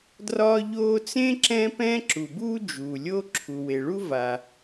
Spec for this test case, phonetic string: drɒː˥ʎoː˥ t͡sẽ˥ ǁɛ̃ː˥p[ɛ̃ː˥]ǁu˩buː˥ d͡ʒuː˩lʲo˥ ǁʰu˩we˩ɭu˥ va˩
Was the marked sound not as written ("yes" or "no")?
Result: no